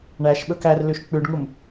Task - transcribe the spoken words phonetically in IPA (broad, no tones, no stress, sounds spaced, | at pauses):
ɳ æ ʃ ɓ ɵ k æ r l ʉ ʃ k͡p ʉ ɖ ŋ u m